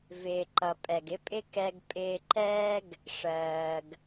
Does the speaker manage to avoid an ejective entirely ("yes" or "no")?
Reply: no